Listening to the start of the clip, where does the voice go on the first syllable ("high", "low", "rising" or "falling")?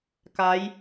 rising